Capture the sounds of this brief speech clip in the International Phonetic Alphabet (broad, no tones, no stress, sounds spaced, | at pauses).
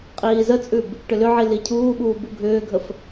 qʼ iː z ə t͡sʼ ʉ b | ʈ ʏ l ʏ ʕ i l i cʰ uː ɓ uː b u ɡʱ ʏː ɡʱ ə f